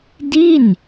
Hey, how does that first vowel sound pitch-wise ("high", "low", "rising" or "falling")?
falling